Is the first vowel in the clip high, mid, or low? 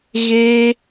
mid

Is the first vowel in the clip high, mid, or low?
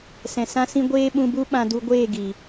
mid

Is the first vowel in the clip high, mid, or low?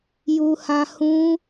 high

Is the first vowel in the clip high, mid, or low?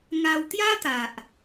low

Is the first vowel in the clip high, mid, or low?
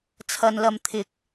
low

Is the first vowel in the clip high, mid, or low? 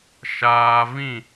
low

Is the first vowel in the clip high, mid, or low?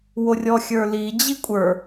mid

